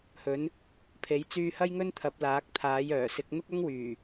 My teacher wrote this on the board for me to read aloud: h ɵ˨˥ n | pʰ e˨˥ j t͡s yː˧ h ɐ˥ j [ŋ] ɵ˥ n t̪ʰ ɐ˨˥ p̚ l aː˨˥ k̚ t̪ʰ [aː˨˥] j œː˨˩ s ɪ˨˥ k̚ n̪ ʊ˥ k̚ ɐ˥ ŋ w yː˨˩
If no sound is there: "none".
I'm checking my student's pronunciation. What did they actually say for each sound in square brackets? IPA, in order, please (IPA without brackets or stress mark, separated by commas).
ŋ, aː˨˥